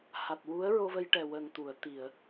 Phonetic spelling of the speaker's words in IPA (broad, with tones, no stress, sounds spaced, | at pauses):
h a˨˩ t̚ w u˧˥ ə̯ ɹ o˧ v ə˧ j ʈ ɛ˨˩ w ə˨˩ ŋ t̪ u˨˩˨ ə̯ t̪ i˨˩˨ ə̯